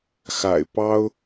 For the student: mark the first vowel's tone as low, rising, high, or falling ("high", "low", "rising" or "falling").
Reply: low